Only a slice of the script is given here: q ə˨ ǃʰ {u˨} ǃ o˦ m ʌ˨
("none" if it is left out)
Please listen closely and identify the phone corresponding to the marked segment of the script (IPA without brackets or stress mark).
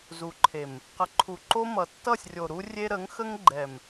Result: u˨